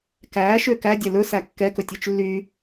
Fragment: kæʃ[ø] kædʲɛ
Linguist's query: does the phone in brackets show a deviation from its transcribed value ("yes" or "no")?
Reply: no